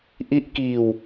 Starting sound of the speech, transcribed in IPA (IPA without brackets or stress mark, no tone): ʔ